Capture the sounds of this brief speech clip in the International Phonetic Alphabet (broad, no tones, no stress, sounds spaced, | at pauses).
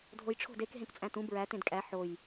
dʱ o j ʈ͡ʂʰ o̤ d e k ɦ ẽ k t͡sʼ æ̃ t ũ b ɹ æ t ẽ d kʼ æ ħ o j